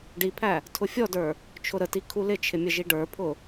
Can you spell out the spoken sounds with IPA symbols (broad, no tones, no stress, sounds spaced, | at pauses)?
ɖ i pʰ æ | tʰ ʊ fʲ ɔ d ə˞ | t͡ʃʰ ʊ ɾ ə t i kʰ u l ɪ t͡ʃʰ ɪ mʲ ə ʒ i ɖ ə˞ pʰ ʊ